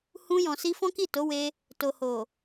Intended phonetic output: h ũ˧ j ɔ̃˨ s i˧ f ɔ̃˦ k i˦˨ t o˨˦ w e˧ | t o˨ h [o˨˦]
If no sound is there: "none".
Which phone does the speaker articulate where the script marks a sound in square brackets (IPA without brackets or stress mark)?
o˨